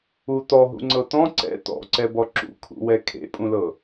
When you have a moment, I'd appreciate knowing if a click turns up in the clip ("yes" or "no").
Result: yes